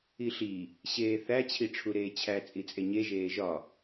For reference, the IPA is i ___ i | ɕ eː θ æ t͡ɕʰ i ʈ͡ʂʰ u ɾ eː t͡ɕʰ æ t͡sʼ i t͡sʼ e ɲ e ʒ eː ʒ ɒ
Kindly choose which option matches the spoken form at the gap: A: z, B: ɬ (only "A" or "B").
B